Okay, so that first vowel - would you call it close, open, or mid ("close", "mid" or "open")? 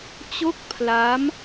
mid